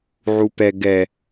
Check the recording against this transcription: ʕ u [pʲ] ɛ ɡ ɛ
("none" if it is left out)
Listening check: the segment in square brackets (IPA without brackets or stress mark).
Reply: p